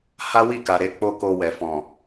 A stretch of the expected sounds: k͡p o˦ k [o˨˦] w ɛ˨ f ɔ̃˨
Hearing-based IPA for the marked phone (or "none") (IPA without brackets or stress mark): o˧